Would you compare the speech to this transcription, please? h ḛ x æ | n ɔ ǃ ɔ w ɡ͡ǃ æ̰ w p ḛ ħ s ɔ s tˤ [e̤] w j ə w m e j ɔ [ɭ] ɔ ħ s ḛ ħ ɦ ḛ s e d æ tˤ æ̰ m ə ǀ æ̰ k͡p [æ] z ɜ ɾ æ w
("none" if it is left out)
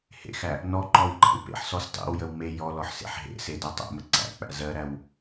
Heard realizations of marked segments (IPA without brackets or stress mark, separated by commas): ḛ, l, æ̰